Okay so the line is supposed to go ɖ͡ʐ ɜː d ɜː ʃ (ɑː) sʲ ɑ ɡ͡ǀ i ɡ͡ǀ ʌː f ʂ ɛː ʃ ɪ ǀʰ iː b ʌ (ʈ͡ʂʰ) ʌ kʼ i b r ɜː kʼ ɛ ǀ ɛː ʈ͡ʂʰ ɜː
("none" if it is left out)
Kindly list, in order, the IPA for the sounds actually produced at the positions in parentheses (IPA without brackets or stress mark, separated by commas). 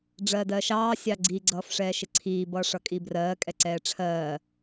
ɑː, ʂ